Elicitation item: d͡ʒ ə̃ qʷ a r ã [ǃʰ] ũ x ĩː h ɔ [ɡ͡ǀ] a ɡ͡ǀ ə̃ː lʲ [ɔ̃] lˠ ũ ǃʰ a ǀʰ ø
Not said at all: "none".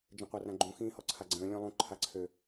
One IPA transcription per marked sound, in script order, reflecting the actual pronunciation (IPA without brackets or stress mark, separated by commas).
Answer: ɡ͡ǃ, ǀʰ, ɔ̃